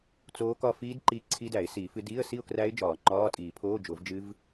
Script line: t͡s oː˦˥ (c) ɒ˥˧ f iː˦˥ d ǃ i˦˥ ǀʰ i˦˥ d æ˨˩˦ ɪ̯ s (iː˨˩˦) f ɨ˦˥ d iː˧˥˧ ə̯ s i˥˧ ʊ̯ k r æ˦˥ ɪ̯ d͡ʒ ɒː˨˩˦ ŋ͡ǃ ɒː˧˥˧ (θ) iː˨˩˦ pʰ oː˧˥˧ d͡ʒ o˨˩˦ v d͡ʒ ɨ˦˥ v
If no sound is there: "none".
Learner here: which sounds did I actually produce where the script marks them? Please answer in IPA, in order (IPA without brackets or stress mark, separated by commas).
k, iː˨˩˦, tʼ